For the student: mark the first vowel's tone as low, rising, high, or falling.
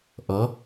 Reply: rising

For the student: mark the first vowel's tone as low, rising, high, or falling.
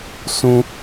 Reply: high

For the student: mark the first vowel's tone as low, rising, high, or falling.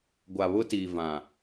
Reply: low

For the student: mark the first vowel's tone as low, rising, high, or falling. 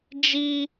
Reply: high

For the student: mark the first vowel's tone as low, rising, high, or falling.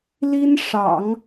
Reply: high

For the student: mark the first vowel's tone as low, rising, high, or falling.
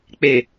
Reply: low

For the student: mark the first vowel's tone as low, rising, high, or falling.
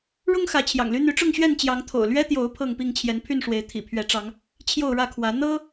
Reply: high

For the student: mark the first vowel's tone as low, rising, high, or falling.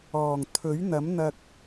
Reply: low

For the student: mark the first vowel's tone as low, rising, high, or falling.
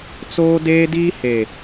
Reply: high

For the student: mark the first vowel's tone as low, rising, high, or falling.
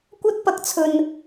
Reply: high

